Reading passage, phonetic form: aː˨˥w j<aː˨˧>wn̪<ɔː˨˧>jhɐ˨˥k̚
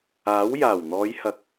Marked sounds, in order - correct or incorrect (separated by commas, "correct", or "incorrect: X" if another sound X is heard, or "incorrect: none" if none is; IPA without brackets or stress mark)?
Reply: incorrect: aː˨˩, correct